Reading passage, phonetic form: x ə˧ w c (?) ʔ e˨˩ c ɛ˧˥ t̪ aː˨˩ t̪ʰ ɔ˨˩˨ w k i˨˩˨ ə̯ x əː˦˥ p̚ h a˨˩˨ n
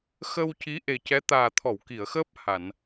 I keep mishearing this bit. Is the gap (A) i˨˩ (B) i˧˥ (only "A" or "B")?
B